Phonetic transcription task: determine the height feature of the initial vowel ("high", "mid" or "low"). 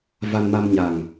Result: low